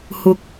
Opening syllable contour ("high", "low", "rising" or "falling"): high